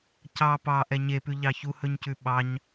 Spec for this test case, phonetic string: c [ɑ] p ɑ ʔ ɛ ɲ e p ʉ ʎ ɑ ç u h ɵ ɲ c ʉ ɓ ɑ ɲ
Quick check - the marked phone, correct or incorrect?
correct